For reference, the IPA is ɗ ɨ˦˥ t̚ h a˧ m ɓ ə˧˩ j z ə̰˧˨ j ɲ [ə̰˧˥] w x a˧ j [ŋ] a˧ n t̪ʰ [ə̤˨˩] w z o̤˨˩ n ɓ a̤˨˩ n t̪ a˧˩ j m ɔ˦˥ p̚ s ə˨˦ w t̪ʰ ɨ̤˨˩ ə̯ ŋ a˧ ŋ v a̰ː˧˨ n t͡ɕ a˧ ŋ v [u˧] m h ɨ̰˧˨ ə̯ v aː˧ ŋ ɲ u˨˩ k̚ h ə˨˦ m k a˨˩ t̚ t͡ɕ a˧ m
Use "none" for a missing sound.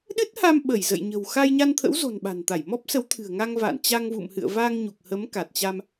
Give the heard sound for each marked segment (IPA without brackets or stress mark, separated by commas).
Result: ə̤˨˩, ɲ, ə̰˧˥, ṵ˧˨